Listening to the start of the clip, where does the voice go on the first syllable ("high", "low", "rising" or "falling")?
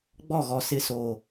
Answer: falling